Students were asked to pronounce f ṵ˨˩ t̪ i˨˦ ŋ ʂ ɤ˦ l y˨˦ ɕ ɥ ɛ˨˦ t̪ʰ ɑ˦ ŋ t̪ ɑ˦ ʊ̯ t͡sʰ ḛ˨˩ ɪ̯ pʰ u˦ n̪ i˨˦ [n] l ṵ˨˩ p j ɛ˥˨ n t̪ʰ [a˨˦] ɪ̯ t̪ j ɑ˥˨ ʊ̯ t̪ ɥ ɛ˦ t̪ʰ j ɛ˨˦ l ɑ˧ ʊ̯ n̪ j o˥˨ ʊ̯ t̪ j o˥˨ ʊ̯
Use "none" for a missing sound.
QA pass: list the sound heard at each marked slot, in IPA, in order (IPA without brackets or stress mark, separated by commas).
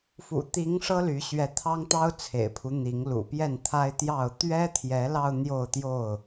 ŋ, a˦